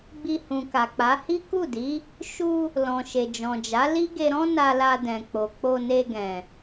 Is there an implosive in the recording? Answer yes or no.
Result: no